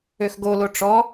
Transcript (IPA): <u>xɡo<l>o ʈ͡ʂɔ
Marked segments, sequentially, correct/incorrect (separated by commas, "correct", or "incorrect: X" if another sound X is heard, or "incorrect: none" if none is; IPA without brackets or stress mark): incorrect: ø, correct